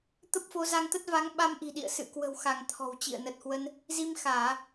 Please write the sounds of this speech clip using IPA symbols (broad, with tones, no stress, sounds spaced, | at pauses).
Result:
t̪ ə˦˥ p̚ f o˨˦ z a˧ ŋ t̪ ə˦˥ t̚ v a˨˦ ŋ ɓ a˧ m ʔ i̤˨˩ ɗ ḭ˧˨ ə̯ s ɨ̰˧˨ k w ə̤˨˩ w x a˧˩ ŋ t̪ʰ ɔ̤˨˩ w t͡ɕ ḭ˧˨ ə̯ n ə˨˩ t̚ h w ə˧ n | z i˧ m x aː˧˩˨